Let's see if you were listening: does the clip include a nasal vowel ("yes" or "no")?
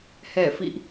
no